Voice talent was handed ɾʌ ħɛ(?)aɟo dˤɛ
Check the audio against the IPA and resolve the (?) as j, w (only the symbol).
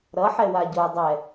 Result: w